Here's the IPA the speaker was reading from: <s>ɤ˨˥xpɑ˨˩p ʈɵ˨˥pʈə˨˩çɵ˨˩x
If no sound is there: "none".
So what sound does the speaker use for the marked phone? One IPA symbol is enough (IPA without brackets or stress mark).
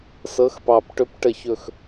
s